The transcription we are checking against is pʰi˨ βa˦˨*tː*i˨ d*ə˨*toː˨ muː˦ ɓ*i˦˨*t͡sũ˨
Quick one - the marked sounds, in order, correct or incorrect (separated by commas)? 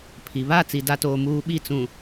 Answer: incorrect, incorrect, correct